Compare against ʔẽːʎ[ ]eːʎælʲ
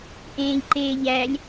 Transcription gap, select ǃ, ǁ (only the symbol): ǃ